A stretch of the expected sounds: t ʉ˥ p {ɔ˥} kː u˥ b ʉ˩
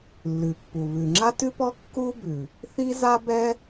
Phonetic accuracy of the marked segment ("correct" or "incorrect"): correct